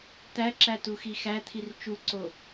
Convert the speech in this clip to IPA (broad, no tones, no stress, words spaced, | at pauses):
t̪æǁæ tuxixæt̪ʰir t͡ʃuǀo